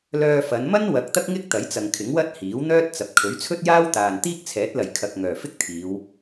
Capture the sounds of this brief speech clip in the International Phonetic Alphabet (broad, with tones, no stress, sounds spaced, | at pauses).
l œː˧ f ɐ˨˧ n m ɐ˥ n w ɐ˧ k̚ t̪ ɐ˥ k̚ ŋ ɪ˥ k̚ t̪ ɐ˨˥ j t͡s ɐ˨ ŋ kʰ ɪ˨˥ ŋ w ɐ˥ t̚ h iː˨˥ w n̪ œː˥ t̚ t͡s ɐ˨ p̚ kʰ ɵ˨˥ ɥ t͡sʰ ɵ˥ t̚ j aː˥ w t̪ aː˨ n t̪ iː˥ k̚ t͡sʰ ɛː˨˥ t̚ l ɐ˨˩ j kʰ ɐ˨ k̚ ŋ œː˨˩ f ɪ˥ k̚ t̪ʰ iː˨˧ w